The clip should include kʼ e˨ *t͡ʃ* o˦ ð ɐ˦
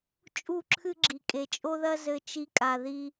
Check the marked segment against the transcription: incorrect: t͡ʃʼ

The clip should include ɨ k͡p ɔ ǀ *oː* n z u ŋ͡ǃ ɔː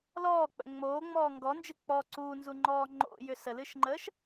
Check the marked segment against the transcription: incorrect: uː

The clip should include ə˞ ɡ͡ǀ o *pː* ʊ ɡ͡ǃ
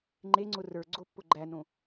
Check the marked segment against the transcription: correct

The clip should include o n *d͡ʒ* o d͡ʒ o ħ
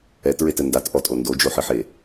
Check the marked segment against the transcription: incorrect: d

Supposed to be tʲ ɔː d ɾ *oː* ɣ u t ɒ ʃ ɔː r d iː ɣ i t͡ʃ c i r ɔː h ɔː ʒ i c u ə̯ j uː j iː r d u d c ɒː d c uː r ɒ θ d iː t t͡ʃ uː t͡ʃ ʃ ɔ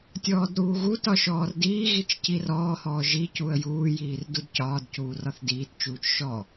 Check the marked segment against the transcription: incorrect: uː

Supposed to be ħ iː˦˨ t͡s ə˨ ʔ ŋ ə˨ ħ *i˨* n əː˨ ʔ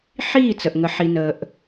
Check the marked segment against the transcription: correct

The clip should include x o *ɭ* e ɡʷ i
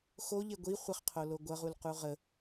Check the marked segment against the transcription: incorrect: ʎ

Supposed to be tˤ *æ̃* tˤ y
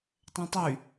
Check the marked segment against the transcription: correct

